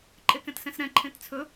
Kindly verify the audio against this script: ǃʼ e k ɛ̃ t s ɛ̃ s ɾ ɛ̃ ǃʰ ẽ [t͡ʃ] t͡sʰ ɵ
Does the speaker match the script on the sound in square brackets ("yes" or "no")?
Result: no